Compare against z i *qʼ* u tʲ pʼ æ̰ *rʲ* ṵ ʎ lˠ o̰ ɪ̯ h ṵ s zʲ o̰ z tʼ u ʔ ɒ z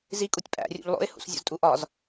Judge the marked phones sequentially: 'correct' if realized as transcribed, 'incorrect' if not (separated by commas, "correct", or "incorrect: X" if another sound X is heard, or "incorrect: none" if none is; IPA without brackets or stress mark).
incorrect: kʼ, correct